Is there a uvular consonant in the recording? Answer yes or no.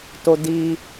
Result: no